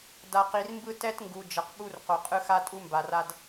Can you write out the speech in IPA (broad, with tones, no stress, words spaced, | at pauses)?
da˨qi˨rmbɯ˦ tɛ˦tŋɡu˨ d͡ʒʌ˨qɓu˦r qo˨qʼɯ˦ xa˦tʼu˦mba˨ra˦d